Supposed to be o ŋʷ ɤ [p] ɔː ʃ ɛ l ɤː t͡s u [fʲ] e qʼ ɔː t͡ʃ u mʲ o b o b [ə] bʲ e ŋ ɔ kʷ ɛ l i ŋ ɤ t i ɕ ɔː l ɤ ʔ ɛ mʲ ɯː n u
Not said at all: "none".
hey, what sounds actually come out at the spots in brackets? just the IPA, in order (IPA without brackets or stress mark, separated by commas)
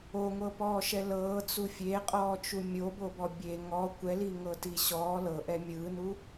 p, fʲ, ɔ